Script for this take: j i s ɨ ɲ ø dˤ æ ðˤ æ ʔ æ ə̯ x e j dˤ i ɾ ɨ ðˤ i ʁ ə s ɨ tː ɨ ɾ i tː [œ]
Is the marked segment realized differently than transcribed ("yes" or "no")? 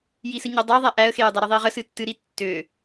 yes